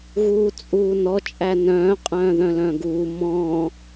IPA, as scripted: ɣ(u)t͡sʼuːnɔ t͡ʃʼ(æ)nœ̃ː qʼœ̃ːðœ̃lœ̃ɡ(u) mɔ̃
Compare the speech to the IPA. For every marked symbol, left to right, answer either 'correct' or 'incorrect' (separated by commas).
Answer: incorrect, correct, incorrect